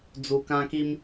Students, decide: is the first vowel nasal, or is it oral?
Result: oral